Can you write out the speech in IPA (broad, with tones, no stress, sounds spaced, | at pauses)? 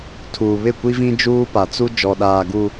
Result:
tʰ uː˨ β ɪ˦˨ kʷ i˦ v ĩ˦ d͡ʒ uː˦ p a˨ t͡s u˦ d͡ʒ ɔ˨ ɗ aː˨ ɡ u˨